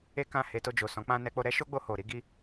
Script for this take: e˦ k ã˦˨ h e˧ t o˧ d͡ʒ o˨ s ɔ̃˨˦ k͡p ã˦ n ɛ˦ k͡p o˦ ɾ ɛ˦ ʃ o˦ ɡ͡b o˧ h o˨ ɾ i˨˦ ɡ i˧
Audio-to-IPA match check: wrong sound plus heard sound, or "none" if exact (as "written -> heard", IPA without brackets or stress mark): none